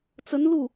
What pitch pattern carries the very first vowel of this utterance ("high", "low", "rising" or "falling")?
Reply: rising